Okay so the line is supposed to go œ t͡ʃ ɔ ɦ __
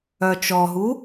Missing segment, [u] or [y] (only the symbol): u